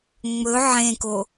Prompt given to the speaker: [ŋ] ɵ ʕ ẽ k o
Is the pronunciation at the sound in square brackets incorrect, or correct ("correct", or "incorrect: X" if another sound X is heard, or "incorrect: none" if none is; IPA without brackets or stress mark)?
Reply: incorrect: ŋ͡m